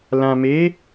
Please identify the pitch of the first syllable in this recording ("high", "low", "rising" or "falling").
low